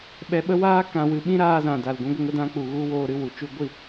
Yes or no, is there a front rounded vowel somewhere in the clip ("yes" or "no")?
no